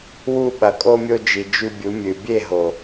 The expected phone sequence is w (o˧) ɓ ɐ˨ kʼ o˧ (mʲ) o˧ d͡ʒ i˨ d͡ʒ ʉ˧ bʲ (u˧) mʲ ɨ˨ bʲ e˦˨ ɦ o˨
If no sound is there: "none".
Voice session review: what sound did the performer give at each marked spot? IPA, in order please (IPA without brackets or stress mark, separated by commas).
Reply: u˧, mʲ, u˨˦